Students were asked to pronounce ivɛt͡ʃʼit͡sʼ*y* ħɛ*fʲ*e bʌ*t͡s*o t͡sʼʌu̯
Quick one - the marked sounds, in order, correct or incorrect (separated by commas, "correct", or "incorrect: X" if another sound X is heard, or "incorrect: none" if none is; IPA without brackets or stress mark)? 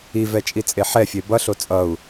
incorrect: e, correct, incorrect: ɬ